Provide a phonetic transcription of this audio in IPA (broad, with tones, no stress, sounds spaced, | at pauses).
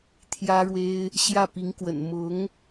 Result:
t̪ʰ j ä˥ ɻ w e˥ ɪ̯ | ɕ j ä˥˩ p i˧˥ ŋ k w ə̰˨˩ n m ʊ˧˥ ŋ